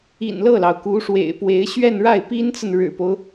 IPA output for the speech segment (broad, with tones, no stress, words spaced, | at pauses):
ḭ˨˩n lɤ˥˩lɑ˩ʊ̯ku˧˥ ʂwḛ˨˩ɪ̯pwe˧˥ɪ̯ ɕɥɛ˥˧nɻa˥˩ɪ̯ pi˥nt͡sə˨n ɻɻ̩˨˩po˦ʊ̯